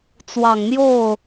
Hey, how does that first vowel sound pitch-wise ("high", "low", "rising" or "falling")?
low